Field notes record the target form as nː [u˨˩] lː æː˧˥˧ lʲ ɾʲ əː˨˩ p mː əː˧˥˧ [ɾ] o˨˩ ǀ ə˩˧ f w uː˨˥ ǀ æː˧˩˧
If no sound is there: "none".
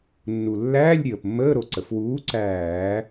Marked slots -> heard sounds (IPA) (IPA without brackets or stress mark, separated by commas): u˨˩, ɾ